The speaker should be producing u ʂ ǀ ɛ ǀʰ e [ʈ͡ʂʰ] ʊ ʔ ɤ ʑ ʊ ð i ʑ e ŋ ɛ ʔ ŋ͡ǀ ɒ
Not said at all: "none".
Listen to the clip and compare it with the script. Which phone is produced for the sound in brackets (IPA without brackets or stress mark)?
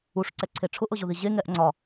ʈ͡ʂʰ